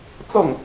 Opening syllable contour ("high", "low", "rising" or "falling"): falling